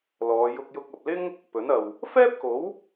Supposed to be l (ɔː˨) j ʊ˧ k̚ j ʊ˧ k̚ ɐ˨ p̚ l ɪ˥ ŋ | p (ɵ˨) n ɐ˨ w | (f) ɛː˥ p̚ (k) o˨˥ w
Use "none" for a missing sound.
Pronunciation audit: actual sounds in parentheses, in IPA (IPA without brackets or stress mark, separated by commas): ɔː˨˧, ɵ˨˥, f, k